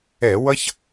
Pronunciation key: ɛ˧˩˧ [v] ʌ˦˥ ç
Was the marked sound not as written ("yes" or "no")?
yes